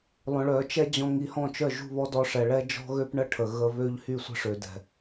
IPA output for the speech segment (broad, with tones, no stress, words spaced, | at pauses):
lˠœ̃˨ɭœ˨ t͡ʃɛ˦d͡ʑɔ̃˧ŋ i˨hɔ̃˦˨t͡ʃœ˦˨ ʒṳ˦˨βɔ˦dɔ˧ ʂɛ˨ɭɛ˦ d͡ʒɔ̤˦ɣø˦p ɳə˦ʈʰə˨ɣə˧βø˦ʎ hy˦˨sʷə̤˦ʂø˨dɛ̤˨